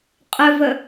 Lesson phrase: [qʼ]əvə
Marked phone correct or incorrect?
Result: correct